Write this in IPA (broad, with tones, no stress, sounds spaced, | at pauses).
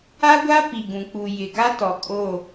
a˦ ɡʷ a˦ p i˨ ɡ ũ˨ k͡p u˨ j ɪ˨ ɡ a˦ t ɔ˨ kʼ o˦˨